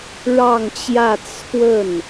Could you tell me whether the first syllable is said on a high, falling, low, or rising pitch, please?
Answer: falling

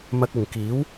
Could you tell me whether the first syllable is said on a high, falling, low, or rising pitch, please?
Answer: high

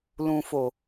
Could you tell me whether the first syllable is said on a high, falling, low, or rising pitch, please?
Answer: low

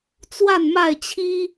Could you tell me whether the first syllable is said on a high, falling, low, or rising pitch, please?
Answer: falling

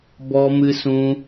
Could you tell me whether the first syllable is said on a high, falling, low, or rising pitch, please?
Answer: high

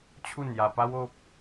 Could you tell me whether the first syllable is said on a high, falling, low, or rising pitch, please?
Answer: falling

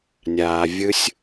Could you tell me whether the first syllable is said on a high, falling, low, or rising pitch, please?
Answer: low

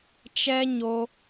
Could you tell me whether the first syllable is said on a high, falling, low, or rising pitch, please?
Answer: high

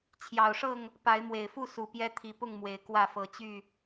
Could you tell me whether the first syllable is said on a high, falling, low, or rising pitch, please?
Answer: low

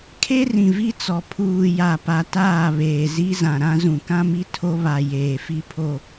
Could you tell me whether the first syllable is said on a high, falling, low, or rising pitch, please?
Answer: high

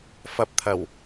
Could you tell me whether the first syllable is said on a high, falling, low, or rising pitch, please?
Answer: rising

